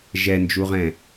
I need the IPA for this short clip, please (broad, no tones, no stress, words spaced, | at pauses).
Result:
ʒɛnd͡ʒuʁɛ̃